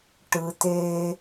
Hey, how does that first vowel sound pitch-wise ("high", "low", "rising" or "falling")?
low